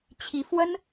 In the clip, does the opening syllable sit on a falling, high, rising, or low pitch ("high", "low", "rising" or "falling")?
rising